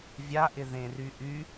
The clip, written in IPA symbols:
vʲ a ʔ ɪ ð ẽ r y ʔ y

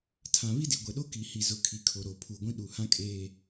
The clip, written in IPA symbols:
tʰ ã˨ β i˦ d i˨ ɡʷ ɛ˨ ɗ o˦ k i˨ h i˨ z ʊ˨ kʰ i˨ kʰ o˨ ɾ o˨ pʰ u˨ ɡʷ ĩ˦ ɗ u˨ h ã˦ kʼ eː˦

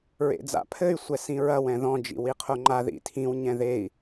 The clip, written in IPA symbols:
ɹ ḛ d͡z a̰ pʰ ɘ y̯ sʷ ɛ s ĩ ɹ ɐ w ɛ̃ ð ɔ̃ d͡ʒ ḭ w i qʰ o ŋ͡ǃ a ð ḭ tʰ ĩ w ɲ ɛ̃ ð e i̯

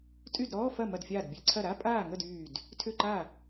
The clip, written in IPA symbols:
tʼ y˥˩ d ɾ ɔː˧˥˧ f ɐ˥˩ m ɐ˥˩ d fʲ aː˥˩ d bʲ ɛ˧˥˧ ǀʰ ɐ˥˩ ɾ a˧˥˧ pʼ aː˥˩ ŋ ə˥˩ d yː˥˩ d | tʰ ʏ˥˩ ǃ a˥˩

